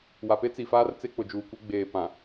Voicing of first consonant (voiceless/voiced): voiced